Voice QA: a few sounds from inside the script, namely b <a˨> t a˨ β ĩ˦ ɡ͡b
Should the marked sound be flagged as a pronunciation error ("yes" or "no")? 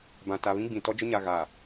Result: yes